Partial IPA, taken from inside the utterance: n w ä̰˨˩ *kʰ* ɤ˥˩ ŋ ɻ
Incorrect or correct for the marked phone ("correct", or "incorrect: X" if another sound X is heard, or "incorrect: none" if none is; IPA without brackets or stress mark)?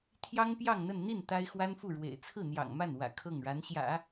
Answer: correct